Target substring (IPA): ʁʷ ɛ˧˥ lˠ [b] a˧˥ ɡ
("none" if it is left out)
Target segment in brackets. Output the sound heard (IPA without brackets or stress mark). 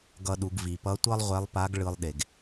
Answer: p